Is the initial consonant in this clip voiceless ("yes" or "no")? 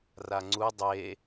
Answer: no